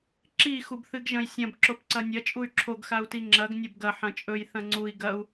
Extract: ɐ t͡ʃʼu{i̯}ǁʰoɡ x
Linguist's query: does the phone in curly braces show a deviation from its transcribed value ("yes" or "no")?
yes